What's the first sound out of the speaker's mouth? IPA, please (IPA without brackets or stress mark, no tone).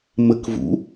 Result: m